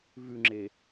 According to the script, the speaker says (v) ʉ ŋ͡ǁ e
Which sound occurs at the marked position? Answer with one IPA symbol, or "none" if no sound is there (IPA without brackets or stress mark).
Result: v